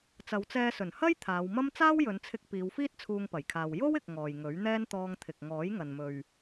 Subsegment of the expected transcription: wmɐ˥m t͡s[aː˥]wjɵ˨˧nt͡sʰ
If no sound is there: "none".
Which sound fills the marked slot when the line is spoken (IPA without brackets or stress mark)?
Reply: aː˥